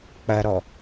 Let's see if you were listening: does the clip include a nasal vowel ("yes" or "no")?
no